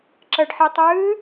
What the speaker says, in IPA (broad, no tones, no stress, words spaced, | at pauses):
ǁəɖħitˤɨː